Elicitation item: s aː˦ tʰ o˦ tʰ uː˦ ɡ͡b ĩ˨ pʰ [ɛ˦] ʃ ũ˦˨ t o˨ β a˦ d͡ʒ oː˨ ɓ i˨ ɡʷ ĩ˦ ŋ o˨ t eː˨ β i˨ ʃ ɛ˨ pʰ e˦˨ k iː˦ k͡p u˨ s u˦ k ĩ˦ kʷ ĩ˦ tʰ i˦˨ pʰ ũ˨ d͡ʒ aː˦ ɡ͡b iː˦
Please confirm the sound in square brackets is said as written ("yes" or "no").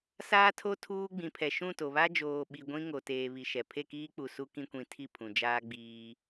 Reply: no